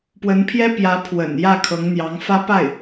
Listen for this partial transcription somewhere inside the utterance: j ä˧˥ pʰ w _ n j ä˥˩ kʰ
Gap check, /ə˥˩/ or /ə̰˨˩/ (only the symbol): ə̰˨˩